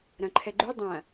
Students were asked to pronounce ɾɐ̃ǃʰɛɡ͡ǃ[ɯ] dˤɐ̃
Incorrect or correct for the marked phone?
incorrect: u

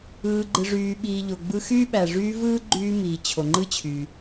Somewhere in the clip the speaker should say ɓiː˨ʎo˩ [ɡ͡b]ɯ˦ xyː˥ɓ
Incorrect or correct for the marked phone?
correct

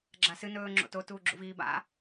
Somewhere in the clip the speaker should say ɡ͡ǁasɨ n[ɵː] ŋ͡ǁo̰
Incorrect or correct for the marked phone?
correct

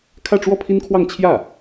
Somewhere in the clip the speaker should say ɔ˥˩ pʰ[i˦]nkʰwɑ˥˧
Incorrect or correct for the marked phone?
incorrect: i˥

